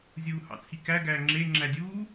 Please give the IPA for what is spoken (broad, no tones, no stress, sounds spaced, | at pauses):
zʲ uː h ɑ̰ t͡sʰ i k æ ɡ æː ŋ͡ǁ e ŋ͡ǁ æ dʲ uː